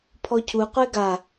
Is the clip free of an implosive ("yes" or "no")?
yes